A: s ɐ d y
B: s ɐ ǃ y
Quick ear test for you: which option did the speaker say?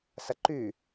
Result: B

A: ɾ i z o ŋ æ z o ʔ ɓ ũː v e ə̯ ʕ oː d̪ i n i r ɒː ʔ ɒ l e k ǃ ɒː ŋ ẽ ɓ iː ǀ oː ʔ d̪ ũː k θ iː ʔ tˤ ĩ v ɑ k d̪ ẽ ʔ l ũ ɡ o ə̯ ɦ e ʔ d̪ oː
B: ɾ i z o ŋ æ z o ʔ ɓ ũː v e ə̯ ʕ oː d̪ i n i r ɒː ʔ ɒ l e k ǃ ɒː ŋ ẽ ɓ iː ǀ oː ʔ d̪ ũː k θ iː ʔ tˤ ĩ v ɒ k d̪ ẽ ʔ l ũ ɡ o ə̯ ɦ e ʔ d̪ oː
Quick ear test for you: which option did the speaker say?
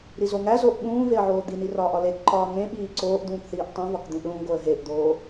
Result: B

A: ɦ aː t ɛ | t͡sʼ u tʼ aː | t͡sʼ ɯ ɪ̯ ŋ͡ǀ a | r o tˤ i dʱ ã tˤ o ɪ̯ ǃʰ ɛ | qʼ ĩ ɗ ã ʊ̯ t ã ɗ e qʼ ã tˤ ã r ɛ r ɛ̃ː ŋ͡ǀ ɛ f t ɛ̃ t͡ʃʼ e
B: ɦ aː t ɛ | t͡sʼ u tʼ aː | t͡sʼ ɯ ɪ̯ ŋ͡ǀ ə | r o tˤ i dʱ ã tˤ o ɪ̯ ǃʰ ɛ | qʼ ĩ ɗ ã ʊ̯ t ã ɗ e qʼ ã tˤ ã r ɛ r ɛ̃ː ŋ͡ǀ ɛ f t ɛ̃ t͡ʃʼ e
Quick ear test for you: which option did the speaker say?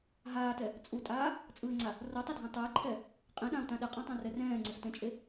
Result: A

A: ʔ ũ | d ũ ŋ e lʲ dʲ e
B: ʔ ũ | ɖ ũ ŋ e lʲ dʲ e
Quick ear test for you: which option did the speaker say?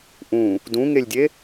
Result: A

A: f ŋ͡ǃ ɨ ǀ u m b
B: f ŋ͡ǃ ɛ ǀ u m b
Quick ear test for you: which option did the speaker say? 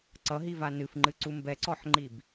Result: A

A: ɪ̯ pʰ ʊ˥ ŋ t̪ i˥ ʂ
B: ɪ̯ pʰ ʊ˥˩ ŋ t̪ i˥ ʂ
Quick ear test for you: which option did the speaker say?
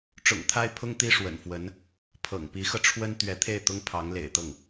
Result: A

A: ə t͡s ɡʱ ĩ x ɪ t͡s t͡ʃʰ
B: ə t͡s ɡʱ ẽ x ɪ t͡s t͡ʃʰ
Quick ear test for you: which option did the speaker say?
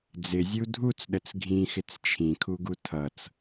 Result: A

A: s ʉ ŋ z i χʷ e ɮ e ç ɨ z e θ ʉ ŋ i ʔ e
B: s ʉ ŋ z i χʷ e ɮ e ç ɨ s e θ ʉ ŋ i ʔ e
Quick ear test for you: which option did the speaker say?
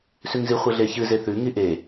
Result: A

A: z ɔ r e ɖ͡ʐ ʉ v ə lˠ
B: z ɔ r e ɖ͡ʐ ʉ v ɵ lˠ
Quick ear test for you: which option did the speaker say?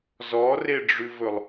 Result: B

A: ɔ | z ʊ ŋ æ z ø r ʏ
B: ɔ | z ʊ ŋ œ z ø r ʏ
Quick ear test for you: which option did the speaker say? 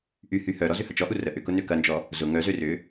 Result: B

